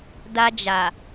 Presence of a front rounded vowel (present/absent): absent